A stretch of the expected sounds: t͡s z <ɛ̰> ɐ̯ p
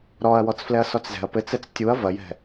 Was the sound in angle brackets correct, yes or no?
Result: no